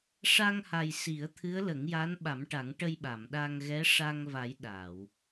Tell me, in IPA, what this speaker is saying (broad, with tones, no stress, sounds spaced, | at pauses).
ʂ a˧ ŋ h a˨˩ j s i˨˩˦ ə̯ t̪ʰ ɨ˧˥ ə̯ l ə˨˩˦ ŋ j a˧˥ n ɓ a˨˩˦ m ʈ a˨˩˦ ŋ ʈ ə˧ j ɓ a˨˩˨ m ɗ a˧ ŋ ɣ ɛ˧˥ ʂ a˧ ŋ v a˨˩˦ j ɗ a˨˩˨ w